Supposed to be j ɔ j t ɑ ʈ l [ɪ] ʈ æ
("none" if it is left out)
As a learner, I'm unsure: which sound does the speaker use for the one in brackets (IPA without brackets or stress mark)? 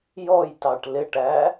ɪ